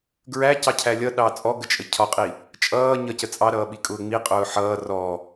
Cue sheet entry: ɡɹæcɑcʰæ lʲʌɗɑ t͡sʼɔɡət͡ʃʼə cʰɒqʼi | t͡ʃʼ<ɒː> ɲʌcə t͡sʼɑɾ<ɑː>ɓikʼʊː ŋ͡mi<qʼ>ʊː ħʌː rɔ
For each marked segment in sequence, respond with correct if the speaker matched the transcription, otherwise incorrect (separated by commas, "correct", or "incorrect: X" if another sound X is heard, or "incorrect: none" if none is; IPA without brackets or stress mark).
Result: incorrect: ʌː, incorrect: ʌː, correct